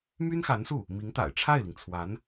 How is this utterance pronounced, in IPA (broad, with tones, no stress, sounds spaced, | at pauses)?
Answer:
m y˥ n x a˧˥ n s u˥˩ | m i˧˥ ŋ t̪ a̰˨˩ ɪ̯ ʈ͡ʂʰ a˥˩ ɪ̯ l i˩ ŋ t͡sʰ w a˧˥ n